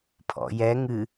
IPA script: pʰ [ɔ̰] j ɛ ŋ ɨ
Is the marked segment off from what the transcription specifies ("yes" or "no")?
no